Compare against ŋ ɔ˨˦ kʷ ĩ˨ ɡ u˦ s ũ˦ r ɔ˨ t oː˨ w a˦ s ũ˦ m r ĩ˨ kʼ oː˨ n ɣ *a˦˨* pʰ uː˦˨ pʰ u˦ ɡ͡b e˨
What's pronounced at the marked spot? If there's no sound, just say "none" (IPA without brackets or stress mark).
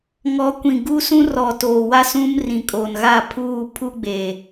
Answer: a˦˨